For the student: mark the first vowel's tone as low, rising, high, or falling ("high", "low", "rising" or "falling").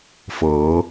rising